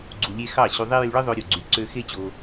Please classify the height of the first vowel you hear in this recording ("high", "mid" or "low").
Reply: high